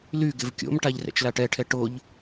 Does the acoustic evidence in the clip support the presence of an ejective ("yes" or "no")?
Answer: no